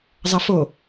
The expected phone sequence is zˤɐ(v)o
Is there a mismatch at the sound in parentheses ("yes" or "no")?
yes